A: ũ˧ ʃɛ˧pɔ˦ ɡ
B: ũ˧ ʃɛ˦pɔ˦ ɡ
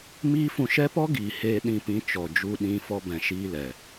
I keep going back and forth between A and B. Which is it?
B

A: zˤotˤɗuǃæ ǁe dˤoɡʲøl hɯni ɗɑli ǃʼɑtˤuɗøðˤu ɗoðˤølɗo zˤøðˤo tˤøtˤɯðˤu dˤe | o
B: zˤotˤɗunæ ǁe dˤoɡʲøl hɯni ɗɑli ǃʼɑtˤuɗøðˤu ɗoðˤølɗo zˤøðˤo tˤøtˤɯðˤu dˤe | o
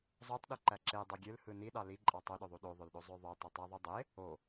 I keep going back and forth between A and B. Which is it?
A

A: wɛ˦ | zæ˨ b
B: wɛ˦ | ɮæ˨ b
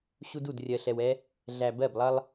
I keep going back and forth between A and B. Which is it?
B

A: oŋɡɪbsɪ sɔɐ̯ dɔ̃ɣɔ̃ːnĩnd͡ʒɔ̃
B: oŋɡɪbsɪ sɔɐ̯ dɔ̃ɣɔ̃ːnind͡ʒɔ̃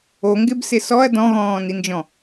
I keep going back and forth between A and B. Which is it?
B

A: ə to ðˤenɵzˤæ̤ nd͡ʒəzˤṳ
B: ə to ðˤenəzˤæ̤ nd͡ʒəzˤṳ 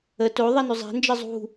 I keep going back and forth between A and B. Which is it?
A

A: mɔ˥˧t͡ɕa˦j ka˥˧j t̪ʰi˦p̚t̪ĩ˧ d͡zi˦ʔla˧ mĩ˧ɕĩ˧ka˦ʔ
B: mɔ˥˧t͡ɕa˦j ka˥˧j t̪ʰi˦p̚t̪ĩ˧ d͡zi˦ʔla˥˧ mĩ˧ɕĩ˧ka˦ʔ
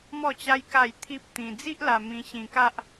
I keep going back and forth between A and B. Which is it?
A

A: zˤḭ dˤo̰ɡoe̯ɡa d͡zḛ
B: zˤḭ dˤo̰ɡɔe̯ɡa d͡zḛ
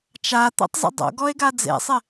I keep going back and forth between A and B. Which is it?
B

